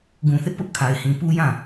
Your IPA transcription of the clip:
ɡ ũ˨ θ ɪ˦ ʔ p ʊ˦ ʔ kʰ a˨ ɪ̯ h ĩ˨ p u˦ j ã˦˨

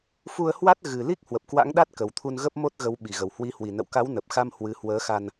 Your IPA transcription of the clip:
f u˧ ə̯ h w a˦˥ t̚ ɣ ɨ˨˩ l i˦˥ k̚ h w ə˨˩ p̚ k w a̰˧˥ ŋ ɗ a˦˥ t̚ k ə˨˩ w t̪ʰ u˧ n ɣ ə˦˥ p̚ m o˦˥ t̚ ɣ ə˨˦ w ɓ i˨˩ ɣ ə˨˩ w h w i˨˦ h w i˨˩ n ə̰˧˨ w k a˨˦ w n ə˨˩ p̚ x a˧ m h w ɨ˨˦ h w əː˨˦ x a˧ n

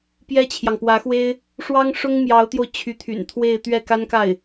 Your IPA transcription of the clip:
p j ɛ˥ t͡ɕʰ j ɑ˨ ŋ p w ä˧˥ x w e˥ ɪ̯ | ʂ w ɑ˥ ŋ ʂ ʊ˥ ŋ m j ɑ˧˥ ʊ̯ t̪ j o˧ ʊ̯ t͡ɕʰ y˧˥ t̪ʰ y̰˨˩ n t̪ʰ w e˥˧ ɪ̯ t̪ ɥ ɛ˥˩ k a˥ n k a˥˩ ɪ̯

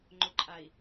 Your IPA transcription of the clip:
ŋ͡ǃ ʊ ǃʼ a i̯

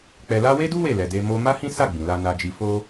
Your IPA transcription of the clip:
k͡p ɛ˧ l a˦ w e˦ d u˦ w e˦˨ l ɛ˨ d e˧ m o˧ m a˦ h ĩ˦ s a˦˨ ɡ͡b ĩ˨ l a˧ n a˧ d͡ʒ i˧ f o˦

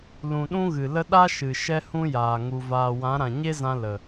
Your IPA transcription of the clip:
l ũ˨ ɗ ũ˦ ɣ ɨ˨ l ə˦ ɗ a˦ ʃ ɨ˨ ʃ ɛ˦ h ũ˦ j aː˨ ŋ u˨ v aː˨ w ã˨˦ ɾ ã˨ ɲ e˦ z ã˧ l ə˨

